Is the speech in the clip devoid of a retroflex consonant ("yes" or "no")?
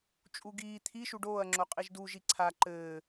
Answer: no